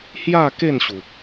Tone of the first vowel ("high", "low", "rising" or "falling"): falling